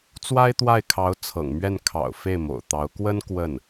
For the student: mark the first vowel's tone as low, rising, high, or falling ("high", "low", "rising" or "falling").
high